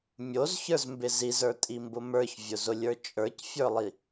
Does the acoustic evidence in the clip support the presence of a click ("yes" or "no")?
no